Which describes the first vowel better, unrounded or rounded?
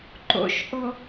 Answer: rounded